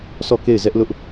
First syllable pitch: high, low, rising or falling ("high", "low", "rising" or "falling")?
falling